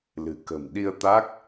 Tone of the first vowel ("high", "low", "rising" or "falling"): low